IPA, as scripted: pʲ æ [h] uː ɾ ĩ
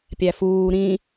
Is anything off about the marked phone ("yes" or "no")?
yes